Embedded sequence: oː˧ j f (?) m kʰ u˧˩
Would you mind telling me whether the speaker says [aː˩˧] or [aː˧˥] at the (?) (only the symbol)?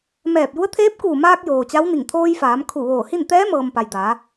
aː˩˧